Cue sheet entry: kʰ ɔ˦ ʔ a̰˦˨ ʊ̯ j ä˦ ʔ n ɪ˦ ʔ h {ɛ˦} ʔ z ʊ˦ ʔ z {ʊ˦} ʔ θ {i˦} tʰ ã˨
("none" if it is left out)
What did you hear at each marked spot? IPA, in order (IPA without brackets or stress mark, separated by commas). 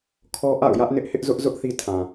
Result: ɪ˦, ʊ˦, i˦